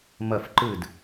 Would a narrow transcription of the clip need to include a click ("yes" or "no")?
yes